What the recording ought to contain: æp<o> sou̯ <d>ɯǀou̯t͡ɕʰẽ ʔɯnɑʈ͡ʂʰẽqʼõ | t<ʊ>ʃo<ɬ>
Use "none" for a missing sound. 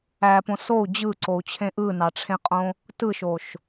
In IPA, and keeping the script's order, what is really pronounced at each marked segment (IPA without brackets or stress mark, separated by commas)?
õ, d͡ʑ, ɯ, ʃ